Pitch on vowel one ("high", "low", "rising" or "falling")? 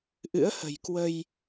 rising